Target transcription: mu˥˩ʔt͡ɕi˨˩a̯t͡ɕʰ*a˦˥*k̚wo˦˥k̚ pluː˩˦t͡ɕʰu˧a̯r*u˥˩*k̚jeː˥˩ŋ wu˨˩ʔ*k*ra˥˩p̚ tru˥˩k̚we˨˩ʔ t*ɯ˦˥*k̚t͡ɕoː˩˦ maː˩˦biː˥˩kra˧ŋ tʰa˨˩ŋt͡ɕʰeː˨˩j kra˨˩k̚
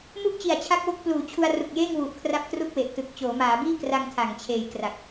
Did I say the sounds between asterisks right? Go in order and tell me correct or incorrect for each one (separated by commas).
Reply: correct, incorrect, incorrect, incorrect